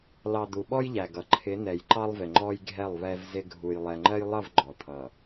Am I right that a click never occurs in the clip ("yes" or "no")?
no